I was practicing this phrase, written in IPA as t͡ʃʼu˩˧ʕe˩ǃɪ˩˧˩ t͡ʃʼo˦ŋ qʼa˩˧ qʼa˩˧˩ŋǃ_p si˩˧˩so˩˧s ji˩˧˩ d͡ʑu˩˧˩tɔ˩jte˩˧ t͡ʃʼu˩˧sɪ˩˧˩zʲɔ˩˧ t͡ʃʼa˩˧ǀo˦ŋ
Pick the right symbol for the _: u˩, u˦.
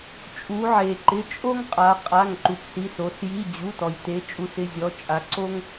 u˩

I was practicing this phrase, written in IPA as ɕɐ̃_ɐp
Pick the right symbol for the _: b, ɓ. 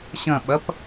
ɓ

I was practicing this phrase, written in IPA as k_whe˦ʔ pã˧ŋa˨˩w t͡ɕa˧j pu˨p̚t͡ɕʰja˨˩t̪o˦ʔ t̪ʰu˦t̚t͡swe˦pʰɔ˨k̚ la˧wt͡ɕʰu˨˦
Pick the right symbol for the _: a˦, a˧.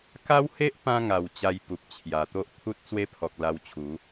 a˦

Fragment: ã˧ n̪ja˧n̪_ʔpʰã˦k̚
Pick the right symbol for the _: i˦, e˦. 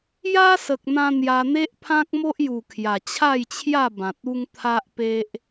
e˦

